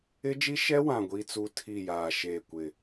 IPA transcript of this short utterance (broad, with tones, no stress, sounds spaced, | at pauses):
ɪ˦ d͡ʒ i˦ ʃ ɛ˦ w ã˨ ɡʷ i˦ t͡s u˦ tʰ i˦˨ j aː˨ ʃ eː˦˨ kʷ ɪ˦˨